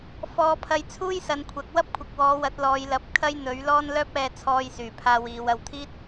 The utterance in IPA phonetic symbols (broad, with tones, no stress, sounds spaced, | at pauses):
f ɔː˨˧ pʰ ɐ˧ j t͡sʰ uː˥ j s ɐ˨˧ n kʷʰ ɐ˨˥ k̚ w ɐ˥ p̚ kʷʰ ɐ˨ k̚ w ɔː˨˧ w ɐ˨˥ t̚ l ɔː˨˧ j l ɐ˨˥ p̚ kʰ ɐ˥ j n̪ ɵ˨˥ ɥ l ɔː˥ n l œː˥ p̚ ɛː˧ t͡sʰ ɔː˧ j s yː˨˩ pʰ aː˧ w iː˨˧ w ɐ˨ w t̪ʰ iː˥ t̚